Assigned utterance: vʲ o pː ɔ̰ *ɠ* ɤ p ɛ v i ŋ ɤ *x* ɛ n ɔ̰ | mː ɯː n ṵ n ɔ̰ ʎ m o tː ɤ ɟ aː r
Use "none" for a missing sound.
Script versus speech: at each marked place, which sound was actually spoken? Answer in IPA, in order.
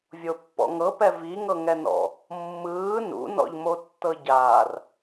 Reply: ŋ, ŋ

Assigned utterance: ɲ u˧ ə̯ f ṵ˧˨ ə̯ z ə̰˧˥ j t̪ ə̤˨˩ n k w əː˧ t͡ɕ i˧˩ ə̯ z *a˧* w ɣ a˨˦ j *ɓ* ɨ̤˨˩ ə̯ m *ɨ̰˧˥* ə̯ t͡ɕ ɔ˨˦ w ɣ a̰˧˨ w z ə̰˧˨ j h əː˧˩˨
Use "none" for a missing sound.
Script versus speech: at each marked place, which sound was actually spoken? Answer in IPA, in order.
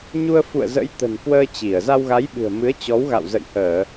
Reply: a˧, ɓ, ɨ˨˦

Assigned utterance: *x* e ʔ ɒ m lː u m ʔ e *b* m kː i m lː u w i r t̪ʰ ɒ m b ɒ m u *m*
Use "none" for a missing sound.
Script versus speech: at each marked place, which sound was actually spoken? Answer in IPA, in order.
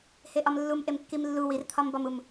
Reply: h, none, m

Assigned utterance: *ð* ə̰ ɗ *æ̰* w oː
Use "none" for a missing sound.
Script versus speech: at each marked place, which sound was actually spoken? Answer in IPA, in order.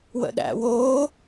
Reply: w, æ̰

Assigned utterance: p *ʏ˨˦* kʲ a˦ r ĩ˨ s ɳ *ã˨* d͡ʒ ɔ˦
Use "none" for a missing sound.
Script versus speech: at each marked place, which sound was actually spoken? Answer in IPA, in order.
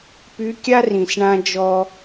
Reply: y˨˦, ã˦

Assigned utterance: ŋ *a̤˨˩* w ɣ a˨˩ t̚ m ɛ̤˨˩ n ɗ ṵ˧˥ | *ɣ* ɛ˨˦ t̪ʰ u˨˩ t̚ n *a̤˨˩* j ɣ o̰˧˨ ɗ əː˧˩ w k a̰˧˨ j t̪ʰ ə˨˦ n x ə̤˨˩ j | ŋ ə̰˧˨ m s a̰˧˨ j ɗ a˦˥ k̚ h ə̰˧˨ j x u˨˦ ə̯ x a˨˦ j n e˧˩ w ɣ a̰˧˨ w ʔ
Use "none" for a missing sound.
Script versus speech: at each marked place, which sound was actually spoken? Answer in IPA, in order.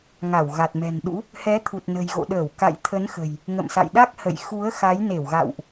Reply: a˧˩, h, ə̤˨˩

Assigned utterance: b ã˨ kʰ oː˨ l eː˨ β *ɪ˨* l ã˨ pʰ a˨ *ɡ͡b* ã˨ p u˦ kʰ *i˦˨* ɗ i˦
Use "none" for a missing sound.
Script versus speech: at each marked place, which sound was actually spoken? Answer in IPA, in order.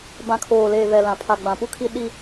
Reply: ɛ˨, ɡ͡b, i˦

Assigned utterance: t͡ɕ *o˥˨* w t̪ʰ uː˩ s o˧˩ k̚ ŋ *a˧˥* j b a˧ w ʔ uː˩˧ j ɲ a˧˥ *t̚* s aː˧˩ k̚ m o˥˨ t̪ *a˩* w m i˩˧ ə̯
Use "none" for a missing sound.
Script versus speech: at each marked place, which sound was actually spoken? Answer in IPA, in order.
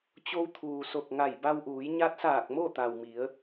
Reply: o˧, a˧˩, t̚, a˩

